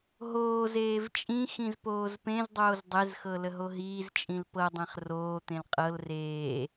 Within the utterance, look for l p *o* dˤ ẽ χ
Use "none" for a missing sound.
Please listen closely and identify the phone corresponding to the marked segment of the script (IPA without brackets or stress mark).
ɤ